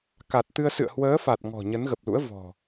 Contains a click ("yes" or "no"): no